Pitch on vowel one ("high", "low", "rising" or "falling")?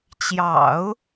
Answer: low